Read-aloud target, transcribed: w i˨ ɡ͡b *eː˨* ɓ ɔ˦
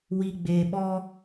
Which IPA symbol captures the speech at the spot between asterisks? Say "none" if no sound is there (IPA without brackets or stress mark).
eː˨